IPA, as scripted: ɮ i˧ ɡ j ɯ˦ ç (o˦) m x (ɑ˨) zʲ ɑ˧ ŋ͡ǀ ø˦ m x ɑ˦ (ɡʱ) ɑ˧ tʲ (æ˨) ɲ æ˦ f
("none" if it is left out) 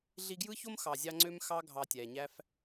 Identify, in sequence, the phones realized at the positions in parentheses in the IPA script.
o˦, ɑ˨, ɡʱ, æ˨

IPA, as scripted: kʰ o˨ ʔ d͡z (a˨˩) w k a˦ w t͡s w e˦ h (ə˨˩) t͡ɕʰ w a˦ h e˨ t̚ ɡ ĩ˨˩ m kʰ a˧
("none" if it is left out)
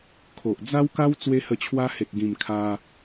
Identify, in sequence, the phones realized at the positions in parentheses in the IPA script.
a˦, ə˧

